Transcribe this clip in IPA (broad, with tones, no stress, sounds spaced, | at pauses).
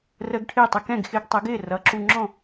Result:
r əː˧ ɡ ʈʰ ɪː˥˩ tˤ ə˧ k ɛ̃˥˩ ɡ x ɪː˧ ɡ tˤ ə˩˥ ɡ ɪː˥˩ r ʌ˩˥ ǁ u˧ ŋ͡ǁ ɔ̃˥˩